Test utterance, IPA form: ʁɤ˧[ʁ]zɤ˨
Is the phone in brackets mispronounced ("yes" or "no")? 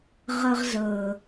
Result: no